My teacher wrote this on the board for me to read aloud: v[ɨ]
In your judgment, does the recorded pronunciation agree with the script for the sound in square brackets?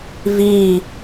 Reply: no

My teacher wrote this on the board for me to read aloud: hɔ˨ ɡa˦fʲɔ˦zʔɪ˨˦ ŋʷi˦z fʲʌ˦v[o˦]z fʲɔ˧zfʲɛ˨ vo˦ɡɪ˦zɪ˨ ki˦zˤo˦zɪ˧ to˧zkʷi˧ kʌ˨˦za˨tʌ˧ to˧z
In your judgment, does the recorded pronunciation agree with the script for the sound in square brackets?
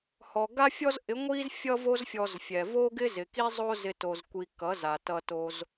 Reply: yes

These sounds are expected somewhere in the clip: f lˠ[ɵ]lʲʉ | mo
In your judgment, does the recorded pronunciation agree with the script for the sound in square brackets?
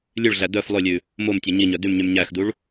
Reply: yes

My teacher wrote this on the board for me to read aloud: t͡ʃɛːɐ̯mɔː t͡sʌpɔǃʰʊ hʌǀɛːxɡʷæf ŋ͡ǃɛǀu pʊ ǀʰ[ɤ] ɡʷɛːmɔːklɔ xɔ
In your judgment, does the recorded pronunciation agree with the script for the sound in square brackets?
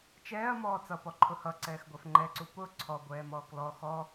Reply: no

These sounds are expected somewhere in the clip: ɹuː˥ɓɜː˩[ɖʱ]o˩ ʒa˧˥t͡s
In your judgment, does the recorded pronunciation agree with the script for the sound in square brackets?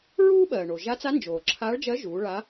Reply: no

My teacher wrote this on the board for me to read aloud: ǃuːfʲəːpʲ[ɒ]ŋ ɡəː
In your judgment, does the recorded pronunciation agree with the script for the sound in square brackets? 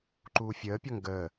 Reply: yes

